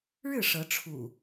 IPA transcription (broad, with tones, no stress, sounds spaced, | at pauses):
ɻ ɻ̩˥˨ ʂ ɤ˨˦ ʈ͡ʂʰ ṵ˨˩